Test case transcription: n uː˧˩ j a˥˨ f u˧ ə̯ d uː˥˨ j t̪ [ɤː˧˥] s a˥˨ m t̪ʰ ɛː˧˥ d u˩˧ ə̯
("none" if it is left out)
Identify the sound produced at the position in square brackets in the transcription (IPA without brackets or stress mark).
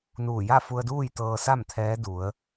ɤː˧